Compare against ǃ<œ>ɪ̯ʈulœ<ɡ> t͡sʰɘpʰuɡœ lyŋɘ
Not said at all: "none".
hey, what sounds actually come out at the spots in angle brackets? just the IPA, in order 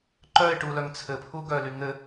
œ, ŋ

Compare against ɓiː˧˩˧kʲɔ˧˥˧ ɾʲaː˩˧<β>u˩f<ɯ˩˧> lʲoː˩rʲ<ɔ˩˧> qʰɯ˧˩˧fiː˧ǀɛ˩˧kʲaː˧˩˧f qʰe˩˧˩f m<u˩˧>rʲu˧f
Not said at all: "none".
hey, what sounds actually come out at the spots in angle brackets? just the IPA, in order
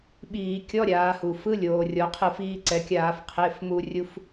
h, ɯ˧˥˧, ɔ˩˧, u˧

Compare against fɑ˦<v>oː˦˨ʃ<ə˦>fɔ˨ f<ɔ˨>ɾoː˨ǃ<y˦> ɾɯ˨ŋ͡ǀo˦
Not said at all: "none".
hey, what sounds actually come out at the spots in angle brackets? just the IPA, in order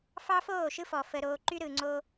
f, ɯ˦, ə˨, y˦

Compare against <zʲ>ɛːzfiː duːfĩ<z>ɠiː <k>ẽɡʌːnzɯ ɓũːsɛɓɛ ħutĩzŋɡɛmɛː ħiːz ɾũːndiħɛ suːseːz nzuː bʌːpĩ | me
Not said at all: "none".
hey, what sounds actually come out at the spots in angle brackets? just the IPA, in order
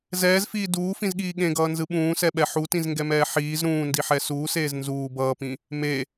z, z, ɠ

